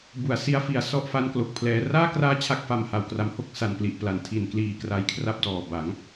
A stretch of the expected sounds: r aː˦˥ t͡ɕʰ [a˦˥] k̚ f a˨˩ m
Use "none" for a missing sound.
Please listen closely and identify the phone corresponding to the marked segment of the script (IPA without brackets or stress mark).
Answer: a˦˥